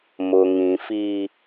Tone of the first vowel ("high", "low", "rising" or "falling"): low